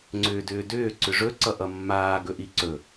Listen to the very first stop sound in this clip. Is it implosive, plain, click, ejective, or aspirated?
click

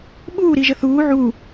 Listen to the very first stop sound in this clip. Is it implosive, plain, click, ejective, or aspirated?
implosive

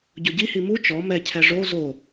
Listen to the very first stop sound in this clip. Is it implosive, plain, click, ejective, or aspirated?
plain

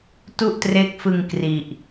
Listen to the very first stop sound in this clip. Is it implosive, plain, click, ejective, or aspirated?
plain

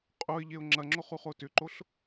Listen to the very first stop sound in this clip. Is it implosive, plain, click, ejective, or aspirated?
ejective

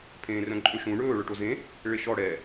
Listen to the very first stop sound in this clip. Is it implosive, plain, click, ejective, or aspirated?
aspirated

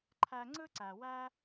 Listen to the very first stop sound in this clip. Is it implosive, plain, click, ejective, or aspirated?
click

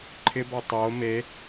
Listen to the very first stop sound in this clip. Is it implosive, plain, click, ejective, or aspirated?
click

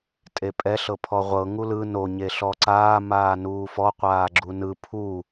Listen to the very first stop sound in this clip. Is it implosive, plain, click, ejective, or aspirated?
ejective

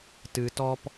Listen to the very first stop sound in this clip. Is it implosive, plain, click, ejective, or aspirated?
plain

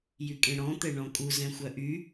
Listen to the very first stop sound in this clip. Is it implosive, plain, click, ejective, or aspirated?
ejective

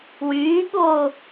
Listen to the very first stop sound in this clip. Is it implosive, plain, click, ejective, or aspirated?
implosive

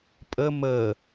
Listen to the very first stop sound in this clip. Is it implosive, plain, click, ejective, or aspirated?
ejective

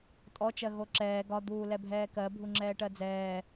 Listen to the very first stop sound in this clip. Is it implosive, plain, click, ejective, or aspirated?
ejective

